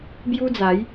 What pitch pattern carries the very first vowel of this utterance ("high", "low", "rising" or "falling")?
high